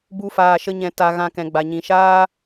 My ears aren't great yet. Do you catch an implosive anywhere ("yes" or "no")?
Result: no